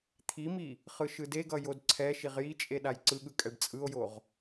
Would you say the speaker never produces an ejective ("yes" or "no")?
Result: no